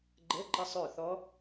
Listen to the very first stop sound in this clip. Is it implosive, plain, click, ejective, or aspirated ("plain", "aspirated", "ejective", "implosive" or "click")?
click